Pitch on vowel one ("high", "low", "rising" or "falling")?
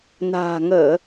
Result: low